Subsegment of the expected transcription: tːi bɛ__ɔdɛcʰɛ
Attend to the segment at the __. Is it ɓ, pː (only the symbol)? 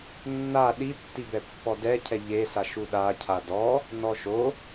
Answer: pː